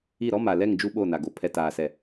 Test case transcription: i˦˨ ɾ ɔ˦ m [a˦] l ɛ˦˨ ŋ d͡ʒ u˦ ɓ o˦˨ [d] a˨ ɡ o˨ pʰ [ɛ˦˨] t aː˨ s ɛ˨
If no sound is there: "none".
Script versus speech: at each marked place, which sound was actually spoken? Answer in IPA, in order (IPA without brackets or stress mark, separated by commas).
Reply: a˨, n, ɛ˨